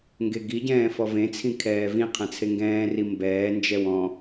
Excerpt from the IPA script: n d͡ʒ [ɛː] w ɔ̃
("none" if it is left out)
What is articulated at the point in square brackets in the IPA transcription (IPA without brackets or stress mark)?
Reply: ɛ